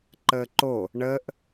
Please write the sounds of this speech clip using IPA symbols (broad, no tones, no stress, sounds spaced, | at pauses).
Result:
ǃ əː ǃ o | ɳ əː ʔ